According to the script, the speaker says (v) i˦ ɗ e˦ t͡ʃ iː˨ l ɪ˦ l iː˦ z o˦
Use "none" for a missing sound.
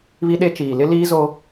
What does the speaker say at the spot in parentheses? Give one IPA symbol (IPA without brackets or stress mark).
β